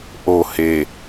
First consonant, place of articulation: glottal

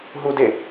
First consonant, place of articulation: glottal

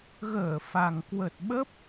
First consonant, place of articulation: velar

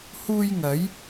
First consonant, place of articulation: glottal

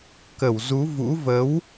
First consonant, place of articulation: velar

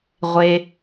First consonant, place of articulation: uvular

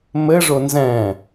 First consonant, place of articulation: labial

